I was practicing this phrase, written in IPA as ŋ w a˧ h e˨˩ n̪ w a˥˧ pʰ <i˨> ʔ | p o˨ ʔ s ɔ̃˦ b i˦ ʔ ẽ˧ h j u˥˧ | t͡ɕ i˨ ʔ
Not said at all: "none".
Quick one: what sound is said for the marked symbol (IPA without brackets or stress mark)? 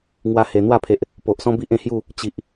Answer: e˨